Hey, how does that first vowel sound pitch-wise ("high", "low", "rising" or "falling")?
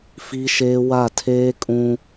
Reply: high